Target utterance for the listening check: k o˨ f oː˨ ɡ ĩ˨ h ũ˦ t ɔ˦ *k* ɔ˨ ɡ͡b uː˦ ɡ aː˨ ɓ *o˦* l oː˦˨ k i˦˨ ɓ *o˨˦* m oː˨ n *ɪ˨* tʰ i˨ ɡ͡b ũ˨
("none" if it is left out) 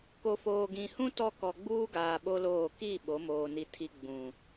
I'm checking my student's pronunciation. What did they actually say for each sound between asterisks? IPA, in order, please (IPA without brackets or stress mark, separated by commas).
k, o˦, o˨˦, i˨